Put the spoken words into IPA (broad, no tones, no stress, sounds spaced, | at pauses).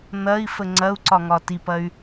n̪ ɐ i̯ f ə ŋ͡ǀ ɐ u̯ ǀ ɒ ŋ ɒ t i p ɐ y̯